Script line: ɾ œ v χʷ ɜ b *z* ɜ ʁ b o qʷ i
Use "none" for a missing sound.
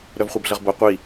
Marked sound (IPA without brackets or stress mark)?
ɮ